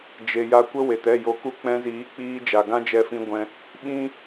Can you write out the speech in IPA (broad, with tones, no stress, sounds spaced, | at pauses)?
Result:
d͡ʒ e˨ j a˧ kʷ ə˦ w e˨ t ɛ˦˨ j o˧ k u˦ k͡p ɛ̃˧ z iː˨˦ k͡p iː˧ d͡ʒ a˨ ɡ ã˦ d͡ʒ ɛ˧ f ĩ˧ ɡʷ ɛ̃˧ | ɓ ĩ˦